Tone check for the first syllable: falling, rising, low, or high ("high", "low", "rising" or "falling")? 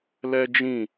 high